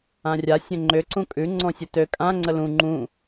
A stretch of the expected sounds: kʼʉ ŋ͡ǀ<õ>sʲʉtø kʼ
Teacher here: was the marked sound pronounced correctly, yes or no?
no